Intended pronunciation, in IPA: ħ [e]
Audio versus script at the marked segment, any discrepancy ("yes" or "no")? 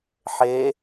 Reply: no